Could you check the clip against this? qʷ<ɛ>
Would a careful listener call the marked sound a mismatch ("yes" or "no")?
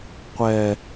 no